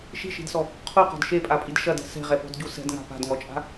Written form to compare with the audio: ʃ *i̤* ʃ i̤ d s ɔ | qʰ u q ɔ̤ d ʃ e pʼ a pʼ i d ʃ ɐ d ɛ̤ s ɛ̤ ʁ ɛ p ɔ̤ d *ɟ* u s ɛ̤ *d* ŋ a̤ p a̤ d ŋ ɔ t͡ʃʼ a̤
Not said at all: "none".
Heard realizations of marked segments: i̤, ɟ, d

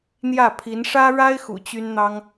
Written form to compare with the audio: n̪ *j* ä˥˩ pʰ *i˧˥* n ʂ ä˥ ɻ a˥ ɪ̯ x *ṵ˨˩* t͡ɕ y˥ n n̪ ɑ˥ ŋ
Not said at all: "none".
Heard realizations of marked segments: j, i˧˥, ṵ˨˩

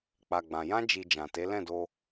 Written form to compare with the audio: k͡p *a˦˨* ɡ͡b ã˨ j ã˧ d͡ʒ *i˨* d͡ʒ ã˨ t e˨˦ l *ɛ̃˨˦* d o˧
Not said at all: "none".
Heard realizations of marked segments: a˨, i˨, ɛ̃˦˨

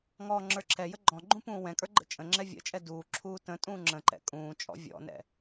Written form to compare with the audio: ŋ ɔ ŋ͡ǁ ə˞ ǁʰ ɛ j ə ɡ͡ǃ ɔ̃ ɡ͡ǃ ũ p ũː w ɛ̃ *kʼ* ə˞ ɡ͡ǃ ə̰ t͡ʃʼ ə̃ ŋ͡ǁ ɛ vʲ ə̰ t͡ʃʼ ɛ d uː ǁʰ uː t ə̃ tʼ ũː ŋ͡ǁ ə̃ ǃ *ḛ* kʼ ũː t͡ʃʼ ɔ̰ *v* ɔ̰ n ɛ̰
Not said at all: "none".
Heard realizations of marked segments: kʼ, ɛ̰, vʲ

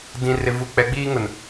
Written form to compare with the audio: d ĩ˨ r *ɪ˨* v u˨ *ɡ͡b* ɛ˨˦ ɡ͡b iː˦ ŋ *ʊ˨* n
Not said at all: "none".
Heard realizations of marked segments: ɪ˨, k͡p, ʊ˨

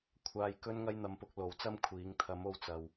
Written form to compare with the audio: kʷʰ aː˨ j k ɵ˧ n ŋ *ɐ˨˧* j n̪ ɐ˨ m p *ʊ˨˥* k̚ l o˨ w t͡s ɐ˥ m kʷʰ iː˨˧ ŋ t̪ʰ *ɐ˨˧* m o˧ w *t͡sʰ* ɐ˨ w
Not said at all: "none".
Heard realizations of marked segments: ɐ˧, ʊ˨˥, ɐ˨˧, t͡s

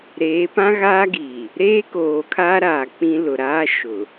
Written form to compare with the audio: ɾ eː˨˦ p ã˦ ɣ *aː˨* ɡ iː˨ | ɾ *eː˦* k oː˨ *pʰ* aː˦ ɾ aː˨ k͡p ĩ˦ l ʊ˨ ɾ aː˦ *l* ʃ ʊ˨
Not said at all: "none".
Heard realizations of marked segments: aː˦, eː˦, kʰ, none

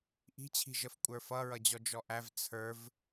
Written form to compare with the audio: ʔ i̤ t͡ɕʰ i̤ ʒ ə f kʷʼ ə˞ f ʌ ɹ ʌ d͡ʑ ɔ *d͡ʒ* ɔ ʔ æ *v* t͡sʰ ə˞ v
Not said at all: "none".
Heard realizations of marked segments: d͡ʒ, v

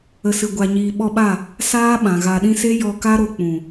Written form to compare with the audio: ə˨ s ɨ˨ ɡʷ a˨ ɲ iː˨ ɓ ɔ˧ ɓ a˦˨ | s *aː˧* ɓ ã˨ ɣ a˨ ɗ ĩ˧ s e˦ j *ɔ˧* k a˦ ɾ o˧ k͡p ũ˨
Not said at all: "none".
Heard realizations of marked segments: aː˦, ɔ˧

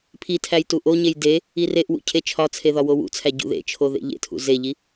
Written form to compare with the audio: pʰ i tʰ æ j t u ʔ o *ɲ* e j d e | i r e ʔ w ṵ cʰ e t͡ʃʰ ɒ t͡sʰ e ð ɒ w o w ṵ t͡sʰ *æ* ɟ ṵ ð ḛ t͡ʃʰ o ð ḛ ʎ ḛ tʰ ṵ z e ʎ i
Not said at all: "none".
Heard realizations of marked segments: ɲ, æ

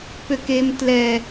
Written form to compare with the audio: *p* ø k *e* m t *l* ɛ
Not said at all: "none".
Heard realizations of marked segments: p, e, l

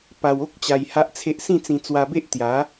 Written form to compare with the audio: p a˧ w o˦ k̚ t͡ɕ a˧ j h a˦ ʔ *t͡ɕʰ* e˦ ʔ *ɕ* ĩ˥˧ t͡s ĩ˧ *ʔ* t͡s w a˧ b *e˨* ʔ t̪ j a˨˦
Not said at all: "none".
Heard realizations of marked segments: t͡sʰ, s, none, e˦

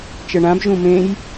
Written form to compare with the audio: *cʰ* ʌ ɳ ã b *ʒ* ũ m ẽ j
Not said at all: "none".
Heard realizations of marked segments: t͡ʃ, ʒ

